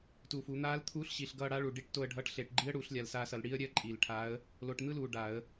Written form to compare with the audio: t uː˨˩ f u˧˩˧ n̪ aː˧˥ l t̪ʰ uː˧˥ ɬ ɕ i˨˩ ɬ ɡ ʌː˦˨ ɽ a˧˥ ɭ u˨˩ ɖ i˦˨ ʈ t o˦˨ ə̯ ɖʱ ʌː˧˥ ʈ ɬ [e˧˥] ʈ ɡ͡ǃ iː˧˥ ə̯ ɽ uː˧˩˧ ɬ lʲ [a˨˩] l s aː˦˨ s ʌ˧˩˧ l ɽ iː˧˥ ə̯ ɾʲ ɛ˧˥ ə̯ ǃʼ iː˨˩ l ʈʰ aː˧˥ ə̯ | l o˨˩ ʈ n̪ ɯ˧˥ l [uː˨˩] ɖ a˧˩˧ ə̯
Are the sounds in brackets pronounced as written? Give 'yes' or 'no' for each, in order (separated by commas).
no, yes, yes